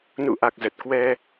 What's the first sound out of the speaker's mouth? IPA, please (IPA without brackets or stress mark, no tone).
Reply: n